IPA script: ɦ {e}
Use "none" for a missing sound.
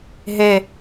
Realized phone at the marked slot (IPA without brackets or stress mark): e